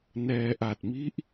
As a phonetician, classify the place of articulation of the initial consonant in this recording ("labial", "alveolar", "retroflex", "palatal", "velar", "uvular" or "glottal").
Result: alveolar